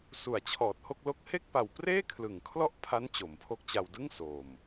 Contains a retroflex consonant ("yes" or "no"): no